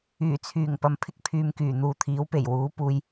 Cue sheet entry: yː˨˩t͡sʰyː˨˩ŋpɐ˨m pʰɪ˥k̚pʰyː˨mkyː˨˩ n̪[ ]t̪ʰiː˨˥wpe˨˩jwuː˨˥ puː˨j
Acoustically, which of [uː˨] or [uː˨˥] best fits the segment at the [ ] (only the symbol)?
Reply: uː˨